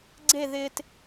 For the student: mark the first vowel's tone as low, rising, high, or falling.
falling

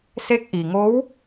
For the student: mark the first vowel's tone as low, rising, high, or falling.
rising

